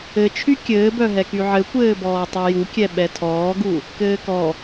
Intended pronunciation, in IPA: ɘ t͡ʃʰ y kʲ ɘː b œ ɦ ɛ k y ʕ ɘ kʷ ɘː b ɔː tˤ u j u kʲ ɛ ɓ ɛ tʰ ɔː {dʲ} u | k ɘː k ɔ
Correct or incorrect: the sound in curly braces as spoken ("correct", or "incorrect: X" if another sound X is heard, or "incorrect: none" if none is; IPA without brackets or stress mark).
incorrect: ɡ